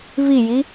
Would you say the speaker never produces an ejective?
yes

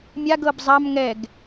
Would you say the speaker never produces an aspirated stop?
yes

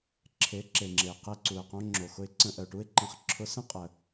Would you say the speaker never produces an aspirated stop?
no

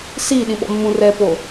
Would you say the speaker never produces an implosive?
no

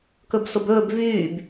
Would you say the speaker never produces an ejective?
yes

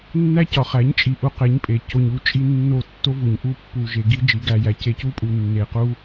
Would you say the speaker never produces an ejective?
no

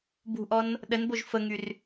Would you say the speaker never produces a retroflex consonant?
yes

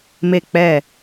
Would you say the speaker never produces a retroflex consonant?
yes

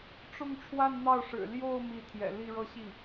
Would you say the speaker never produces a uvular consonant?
yes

